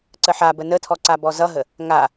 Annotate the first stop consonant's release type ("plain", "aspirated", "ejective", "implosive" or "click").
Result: click